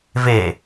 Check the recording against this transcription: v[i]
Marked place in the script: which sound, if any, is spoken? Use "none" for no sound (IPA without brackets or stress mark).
e